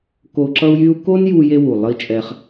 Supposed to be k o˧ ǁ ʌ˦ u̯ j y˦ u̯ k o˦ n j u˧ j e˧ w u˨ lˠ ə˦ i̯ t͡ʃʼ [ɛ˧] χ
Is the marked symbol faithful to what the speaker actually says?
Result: yes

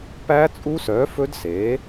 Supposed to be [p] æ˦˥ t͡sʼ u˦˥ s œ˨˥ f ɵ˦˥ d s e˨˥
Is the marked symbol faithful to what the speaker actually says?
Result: yes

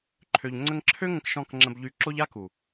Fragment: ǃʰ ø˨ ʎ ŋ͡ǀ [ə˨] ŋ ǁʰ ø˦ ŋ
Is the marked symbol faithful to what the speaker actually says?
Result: no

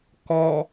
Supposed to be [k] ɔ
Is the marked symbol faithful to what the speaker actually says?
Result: yes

